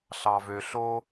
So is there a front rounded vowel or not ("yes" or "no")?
yes